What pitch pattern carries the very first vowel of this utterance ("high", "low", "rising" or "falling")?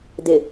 low